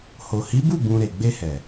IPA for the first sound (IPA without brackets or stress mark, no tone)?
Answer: h